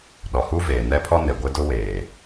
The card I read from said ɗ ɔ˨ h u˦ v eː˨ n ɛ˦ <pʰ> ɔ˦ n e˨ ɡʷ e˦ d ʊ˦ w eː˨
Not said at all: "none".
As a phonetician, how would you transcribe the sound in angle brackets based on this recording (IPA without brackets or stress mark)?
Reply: pʰ